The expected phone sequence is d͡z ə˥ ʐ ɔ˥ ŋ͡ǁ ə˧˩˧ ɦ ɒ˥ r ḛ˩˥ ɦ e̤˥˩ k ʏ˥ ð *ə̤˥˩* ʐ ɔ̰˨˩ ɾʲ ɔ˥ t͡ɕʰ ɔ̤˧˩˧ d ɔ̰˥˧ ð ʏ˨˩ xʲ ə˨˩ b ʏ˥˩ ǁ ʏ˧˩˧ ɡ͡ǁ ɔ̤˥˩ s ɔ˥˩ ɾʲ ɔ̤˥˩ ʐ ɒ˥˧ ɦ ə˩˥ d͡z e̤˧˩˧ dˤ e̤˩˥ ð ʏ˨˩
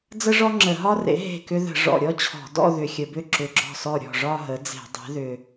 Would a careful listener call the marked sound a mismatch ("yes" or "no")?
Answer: yes